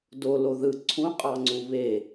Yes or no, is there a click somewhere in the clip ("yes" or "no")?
yes